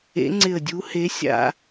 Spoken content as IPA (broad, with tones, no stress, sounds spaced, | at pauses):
ḛ˨˥ ŋ͡ǀ ɪ˧˩ ə̯ dʲ u˨˥ h e˨˥ sʲ a̰˧